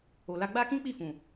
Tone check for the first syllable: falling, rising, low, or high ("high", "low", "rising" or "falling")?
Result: low